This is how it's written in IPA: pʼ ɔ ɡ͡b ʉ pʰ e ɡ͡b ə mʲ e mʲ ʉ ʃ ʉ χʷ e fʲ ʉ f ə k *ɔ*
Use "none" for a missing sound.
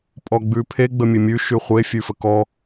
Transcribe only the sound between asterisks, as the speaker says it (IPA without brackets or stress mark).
ɔ